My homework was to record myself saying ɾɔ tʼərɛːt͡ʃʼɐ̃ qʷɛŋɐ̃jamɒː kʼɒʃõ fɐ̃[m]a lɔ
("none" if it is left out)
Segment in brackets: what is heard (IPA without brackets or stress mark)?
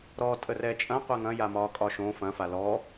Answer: f